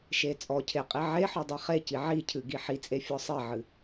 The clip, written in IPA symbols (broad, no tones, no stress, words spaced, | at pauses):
ʃet͡sʼɔcʰe qʼiʕeħɔ dˤeχeci ʕicʰɨ ɡiħit͡sʼe fʲɔsˤeʕɨ